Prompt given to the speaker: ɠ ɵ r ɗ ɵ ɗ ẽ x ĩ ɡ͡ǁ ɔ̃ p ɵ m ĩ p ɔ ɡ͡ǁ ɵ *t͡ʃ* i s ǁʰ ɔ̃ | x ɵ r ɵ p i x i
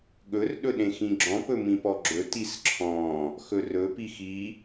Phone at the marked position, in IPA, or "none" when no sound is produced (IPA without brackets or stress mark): t